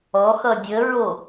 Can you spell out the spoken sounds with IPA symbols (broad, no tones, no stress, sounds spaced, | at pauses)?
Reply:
ɔ x ʌ dʲ ə ɹ o